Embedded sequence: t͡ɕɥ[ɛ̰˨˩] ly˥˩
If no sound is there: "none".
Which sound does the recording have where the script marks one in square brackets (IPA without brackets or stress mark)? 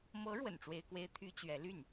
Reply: ɛ˧˥